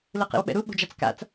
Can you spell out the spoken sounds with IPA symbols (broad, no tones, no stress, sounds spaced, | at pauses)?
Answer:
l ɯ q ḭ w ɓ ɛ̰ ɾ u ɓ o̤ d͡ʒ a t͡s k a̰ t͡s